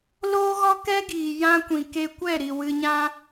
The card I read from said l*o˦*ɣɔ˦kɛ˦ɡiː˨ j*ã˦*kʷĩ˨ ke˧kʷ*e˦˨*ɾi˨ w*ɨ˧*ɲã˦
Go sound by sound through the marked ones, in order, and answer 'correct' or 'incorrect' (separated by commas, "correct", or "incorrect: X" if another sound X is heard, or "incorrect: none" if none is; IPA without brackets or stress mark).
incorrect: oː˦, correct, incorrect: ɛ˦˨, correct